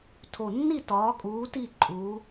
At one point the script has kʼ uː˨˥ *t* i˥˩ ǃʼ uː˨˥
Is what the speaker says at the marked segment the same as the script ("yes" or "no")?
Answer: yes